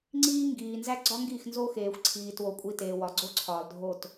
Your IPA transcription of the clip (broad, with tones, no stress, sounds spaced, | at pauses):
ŋ͡ǀ iː˦ ŋ ɡ iː˨ n z æ˦ ɡ͡ǀ ɒ˦ ŋ ɡ i˦˨ x n z o˦ x eː˨ xʷ ǀʰ iː˨ t w o˨ kʷʼ i˨ t eː˨ w ɒ˨ ɡ͡ǀ o˦ ǀʰ ɒː˨ l dʱ o˦˨ t